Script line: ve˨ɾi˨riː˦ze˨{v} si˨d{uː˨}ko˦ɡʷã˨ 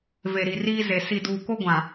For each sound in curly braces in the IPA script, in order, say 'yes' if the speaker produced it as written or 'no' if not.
no, yes

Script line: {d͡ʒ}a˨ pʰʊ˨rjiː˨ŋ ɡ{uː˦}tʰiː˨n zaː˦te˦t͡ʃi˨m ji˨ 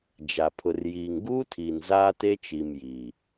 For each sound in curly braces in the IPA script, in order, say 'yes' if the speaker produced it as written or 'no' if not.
yes, yes

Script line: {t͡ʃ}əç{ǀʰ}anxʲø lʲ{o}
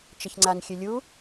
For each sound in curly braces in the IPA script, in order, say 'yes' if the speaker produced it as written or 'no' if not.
yes, no, no

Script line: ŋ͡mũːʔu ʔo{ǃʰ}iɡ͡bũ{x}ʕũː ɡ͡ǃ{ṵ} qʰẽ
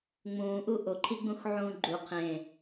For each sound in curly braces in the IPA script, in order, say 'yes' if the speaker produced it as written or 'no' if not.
yes, yes, no

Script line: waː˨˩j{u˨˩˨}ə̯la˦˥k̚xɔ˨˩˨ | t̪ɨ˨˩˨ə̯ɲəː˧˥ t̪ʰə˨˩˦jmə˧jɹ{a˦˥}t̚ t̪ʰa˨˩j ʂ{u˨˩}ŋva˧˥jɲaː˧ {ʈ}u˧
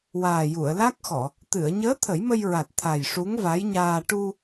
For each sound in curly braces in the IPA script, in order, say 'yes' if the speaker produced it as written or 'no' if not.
yes, no, no, yes

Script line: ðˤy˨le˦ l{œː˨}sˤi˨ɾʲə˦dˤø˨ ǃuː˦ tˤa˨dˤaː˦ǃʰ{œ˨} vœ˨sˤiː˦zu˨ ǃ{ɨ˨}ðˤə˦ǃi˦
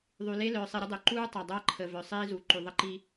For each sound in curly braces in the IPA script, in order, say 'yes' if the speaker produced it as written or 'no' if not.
yes, no, no

